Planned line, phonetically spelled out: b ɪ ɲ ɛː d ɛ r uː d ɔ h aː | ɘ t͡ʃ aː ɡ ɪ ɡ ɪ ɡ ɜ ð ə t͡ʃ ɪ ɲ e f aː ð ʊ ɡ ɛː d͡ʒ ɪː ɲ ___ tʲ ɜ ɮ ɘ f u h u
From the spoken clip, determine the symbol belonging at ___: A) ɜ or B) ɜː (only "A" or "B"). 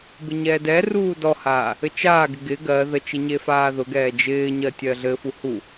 A